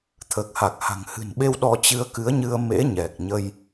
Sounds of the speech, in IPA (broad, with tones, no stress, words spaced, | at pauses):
t̪ʰəː˨˩k̚ha˨˩k̚ ha̤˨˩ŋhɨ̤˨˩nɓe˧w ɗɔ˧ t͡ɕɨ˧ə̯kɨ˨˦ə̯ɲɨ˧ə̯ mḛ˧˥ ɲɛ˨˩k̚ɲə˧j